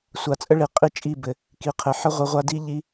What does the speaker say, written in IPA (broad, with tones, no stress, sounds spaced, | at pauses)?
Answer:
sʷ a˨ t͡sʼ ə˦ ɭ i˨ qʼ i˦ t͡ʃʼ i˦˨ b ɘ˨ | k i˨ qʰ ɘ˨ ħ ə˦ ʁʷ i˨ ʁʷ a˦ d i˦ ʎ i˦